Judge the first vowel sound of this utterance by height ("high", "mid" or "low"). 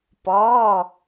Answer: low